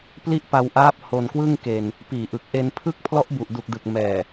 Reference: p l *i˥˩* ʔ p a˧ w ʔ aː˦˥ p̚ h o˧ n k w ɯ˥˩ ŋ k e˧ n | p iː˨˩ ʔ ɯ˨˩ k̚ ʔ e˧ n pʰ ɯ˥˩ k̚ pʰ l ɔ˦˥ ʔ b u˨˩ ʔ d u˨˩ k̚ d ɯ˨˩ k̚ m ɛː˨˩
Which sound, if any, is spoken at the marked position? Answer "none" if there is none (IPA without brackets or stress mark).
i˥˩